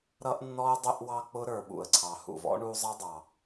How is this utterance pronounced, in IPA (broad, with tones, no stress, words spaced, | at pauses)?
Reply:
ɾʌ˥ʔnːɔ˥ə̯ dˤʊ˦ʔwɑ˦ k͡pʊ˥ɾə˞˨ɓṵ˩ə̯ǀʰɑ˩ hṵ˩vɔ̰˥ɳu˦zˤʌ˥ dˤɑ˩